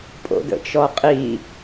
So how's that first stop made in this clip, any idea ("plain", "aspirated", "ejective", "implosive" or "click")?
ejective